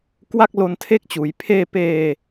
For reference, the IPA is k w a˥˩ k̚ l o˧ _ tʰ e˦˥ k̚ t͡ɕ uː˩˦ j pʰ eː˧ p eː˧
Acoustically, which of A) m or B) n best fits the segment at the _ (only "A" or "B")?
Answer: B